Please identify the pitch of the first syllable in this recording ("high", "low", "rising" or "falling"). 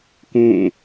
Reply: falling